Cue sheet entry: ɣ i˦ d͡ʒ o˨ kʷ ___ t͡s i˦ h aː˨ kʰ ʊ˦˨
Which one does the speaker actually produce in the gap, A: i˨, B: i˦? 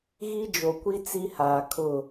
B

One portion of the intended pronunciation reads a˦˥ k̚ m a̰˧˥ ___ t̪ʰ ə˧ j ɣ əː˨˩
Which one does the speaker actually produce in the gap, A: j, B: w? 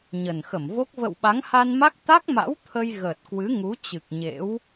B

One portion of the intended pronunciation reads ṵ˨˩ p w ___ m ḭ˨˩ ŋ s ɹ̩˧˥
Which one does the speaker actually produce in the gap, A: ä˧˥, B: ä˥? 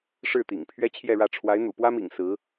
B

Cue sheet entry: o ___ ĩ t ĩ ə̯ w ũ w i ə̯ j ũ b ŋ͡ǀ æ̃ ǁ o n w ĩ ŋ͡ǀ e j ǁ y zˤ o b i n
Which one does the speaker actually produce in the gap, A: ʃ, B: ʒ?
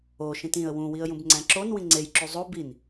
A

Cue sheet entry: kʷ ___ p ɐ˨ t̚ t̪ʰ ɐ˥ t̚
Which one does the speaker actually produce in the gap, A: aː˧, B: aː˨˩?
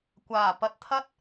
B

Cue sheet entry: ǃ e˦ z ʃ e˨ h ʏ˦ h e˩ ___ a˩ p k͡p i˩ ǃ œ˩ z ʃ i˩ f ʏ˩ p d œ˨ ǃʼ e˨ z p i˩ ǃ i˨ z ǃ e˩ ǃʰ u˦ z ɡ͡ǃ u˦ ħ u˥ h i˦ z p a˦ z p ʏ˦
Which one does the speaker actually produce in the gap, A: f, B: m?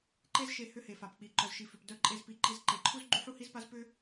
A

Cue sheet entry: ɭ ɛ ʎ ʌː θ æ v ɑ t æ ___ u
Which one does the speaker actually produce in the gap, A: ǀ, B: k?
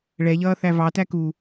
B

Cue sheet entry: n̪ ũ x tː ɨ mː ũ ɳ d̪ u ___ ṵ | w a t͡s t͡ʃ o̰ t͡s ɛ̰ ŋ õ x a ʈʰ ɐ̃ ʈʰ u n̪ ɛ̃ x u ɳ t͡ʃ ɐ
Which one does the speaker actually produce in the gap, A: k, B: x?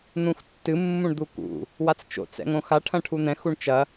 A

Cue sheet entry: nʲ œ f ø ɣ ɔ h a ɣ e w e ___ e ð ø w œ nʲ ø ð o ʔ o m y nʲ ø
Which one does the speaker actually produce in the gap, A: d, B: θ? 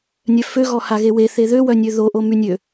B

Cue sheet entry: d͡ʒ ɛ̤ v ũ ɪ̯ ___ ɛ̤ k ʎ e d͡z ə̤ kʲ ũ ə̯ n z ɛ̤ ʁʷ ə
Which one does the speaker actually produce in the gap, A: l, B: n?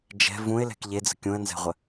A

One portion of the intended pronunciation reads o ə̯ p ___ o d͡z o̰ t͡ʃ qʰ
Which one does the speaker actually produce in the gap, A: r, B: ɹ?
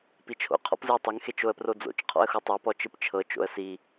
A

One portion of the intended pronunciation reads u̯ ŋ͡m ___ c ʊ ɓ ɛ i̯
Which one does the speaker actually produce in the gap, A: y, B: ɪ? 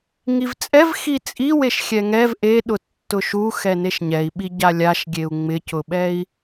B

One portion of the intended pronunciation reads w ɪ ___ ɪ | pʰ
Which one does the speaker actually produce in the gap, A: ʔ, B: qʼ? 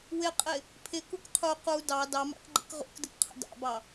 B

